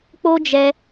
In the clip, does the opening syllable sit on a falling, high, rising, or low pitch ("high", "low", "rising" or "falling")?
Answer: high